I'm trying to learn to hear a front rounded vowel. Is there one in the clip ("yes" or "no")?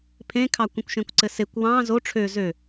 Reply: yes